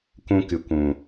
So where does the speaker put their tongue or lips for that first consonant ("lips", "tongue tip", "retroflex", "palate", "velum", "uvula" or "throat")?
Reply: velum